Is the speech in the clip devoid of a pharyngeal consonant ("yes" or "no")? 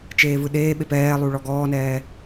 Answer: yes